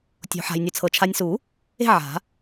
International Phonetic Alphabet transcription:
tʲ o̤˨˩˦ ħ a̤˨ j nʲ ɯ˨ t͡sʰ ɤ˨ t͡ʃʰ a˨ nʲ s u˨˩˦ | e̤˦˨ ʕ a̤˨˩˦

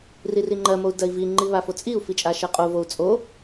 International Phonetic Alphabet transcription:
r i r i ŋ͡ǃ ɜ m o u̯ d ɜ i̯ v i ŋ͡ǃ i β a f o t͡sʼ i u̯ f i t͡ʃʼ a ʃ ɜ qʼ o v o u̯ t͡sʼ o

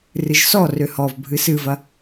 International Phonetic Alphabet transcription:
r ɨ ʒ s ɔ r ø h ɔ v bʱ ɨ s ɨ v ɐ

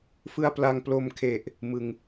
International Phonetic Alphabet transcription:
f ɯ˥˩ a̯ p l a˧ ŋ p l o˧ m kʰ e˨˩ ʔ | m ɯ˧ ŋ

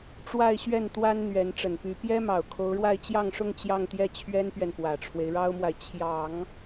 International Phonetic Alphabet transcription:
ʈ͡ʂ w a˥˧ ɪ̯ ɕ ɥ ɛ˥˩ n t̪ w a˥ n n̪ ɥ ɛ˧˥ n ʈ͡ʂ ə˨˩ n p y˧˥ p j ɛ˥ m ɑ˨˩ ʊ̯ kʰ o˧˥ ʊ̯ ɻ w a˥˧ ɪ̯ t͡ɕ j ɑ˥˧ ŋ ʂ ʊ˥˧ ŋ t͡ɕ j ɑ˥˧ ŋ t̪ j ɛ˥˩ t͡ɕʰ ɥ ɛ˥ n p ɥ ɛ˨ n p w ä˨˩ ʈ͡ʂʰ w e˦ ɪ̯ ɻ ɑ˥ ʊ̯ m w a˨ ɪ̯ t͡ɕʰ j ɑ˨˩˦ ŋ

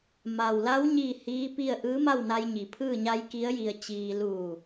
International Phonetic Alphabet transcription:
m a˩ w l a˧˥ w ɲ i˥˨ h iː˧˥ p i˥˨ ə̯ ʔ ɯː˧˥ m a˥˨ w n a˧ j ɲ i˩ pʰ ɯː˥˨ ɲ a˧˥ j k i˧˥ ə̯ j i˧ ə̯ t͡ɕ iː˧ l u˧˩

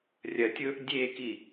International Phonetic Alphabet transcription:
rʲ ɐ tʲ ʊ | dʲ e k i

